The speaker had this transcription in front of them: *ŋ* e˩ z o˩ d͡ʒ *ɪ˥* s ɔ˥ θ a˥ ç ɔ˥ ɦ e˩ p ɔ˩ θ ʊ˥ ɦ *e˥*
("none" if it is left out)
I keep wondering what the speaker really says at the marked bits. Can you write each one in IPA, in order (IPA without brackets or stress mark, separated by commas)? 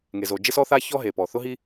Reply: ŋ, ɪ˥, i˥